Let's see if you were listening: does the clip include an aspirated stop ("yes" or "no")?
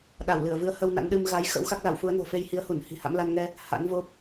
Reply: no